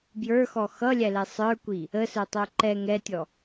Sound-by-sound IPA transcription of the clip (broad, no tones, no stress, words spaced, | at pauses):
bjə˞xɔ xʌlʲælɛ sˤə˞kʷi | əsə˞tˤə˞ ǃɛ ŋɛtʲɔ